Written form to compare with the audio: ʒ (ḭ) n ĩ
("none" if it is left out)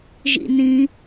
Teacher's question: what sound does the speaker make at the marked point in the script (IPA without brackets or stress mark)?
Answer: ḭ